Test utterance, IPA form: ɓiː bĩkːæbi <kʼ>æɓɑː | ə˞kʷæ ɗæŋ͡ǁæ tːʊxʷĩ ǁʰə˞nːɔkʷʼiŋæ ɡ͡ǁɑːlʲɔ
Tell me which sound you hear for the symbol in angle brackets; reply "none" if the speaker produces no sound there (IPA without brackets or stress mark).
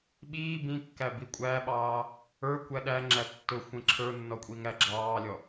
kʷʼ